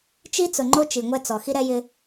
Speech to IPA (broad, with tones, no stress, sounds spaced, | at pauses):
t͡ʃ i˦ t͡s ʊ˨ ŋ͡ǃ o˦ t͡ʃ i˨ ŋʷ ɛ˦ t͡s ɔ˨ x i˦ ɾ ɛ˦ j ɪ˦